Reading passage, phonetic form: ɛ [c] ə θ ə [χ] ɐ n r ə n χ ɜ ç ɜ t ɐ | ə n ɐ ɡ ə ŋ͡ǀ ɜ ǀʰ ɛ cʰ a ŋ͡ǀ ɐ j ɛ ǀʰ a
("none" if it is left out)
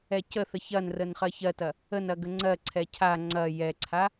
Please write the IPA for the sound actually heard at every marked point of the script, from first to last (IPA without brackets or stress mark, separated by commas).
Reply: c, ç